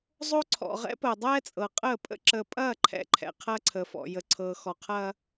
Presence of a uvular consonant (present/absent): present